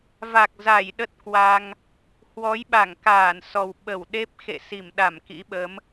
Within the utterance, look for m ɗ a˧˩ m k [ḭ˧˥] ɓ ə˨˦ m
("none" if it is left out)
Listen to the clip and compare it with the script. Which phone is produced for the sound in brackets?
ḭ˧˥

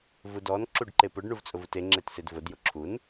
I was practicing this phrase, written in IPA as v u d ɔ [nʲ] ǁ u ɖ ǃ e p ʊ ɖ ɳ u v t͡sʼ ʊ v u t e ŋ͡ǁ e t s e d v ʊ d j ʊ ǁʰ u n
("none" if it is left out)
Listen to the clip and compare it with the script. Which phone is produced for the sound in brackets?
n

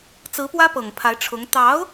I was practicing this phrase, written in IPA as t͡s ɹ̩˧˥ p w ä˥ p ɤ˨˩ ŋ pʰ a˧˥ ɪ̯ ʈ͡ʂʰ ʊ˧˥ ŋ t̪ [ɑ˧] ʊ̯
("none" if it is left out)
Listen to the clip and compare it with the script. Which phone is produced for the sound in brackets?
ɑ˧˥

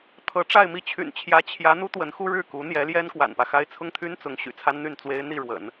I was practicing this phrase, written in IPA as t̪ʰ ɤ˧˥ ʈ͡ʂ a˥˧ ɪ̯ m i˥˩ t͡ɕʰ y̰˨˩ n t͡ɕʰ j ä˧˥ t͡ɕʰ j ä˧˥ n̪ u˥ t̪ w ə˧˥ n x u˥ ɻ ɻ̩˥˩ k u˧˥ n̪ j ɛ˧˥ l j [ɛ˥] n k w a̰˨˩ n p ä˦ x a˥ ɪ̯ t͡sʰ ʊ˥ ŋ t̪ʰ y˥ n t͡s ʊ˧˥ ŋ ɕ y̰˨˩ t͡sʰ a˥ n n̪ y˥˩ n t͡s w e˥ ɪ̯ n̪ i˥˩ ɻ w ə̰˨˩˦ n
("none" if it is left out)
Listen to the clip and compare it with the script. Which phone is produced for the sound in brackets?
ɛ˥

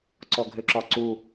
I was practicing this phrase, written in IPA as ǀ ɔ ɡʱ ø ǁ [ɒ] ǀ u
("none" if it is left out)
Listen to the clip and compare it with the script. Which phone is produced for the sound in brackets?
ɒ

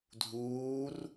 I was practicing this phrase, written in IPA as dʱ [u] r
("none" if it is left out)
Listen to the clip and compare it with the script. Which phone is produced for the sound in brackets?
uː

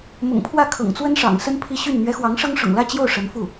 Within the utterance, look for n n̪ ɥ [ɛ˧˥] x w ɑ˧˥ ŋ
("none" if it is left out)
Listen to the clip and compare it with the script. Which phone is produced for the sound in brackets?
ɛ˧˥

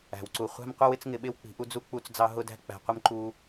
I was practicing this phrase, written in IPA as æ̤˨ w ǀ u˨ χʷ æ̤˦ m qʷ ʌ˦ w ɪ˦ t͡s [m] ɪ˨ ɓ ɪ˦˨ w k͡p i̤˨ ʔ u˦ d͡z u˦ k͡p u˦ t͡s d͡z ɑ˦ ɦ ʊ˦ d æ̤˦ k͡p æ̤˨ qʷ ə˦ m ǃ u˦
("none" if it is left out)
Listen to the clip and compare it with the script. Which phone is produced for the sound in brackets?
ŋ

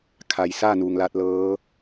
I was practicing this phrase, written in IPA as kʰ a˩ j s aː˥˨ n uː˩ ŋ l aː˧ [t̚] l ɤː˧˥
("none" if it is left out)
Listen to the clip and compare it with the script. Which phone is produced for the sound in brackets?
t̚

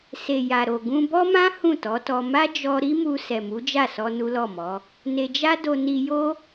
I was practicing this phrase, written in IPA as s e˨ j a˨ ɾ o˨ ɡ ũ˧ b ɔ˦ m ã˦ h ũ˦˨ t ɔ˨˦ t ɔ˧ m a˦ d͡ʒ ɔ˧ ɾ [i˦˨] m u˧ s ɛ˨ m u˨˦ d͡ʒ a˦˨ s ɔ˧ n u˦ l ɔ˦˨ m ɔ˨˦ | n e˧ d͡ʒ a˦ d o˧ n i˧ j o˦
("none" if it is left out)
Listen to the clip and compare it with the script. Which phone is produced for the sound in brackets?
i˦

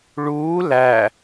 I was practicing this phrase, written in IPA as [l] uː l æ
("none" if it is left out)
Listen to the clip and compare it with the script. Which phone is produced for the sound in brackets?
ɭ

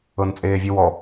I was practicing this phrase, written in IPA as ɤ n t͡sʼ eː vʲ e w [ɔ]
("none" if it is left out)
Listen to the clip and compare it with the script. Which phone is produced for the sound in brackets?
ɔ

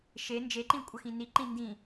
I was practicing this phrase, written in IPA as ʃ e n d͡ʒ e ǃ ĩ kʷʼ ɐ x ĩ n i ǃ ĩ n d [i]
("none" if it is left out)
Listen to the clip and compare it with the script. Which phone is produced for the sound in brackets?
ĩ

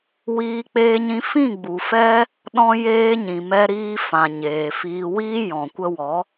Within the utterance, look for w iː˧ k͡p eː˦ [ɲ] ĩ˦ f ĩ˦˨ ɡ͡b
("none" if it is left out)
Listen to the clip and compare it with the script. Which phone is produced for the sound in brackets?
ɲ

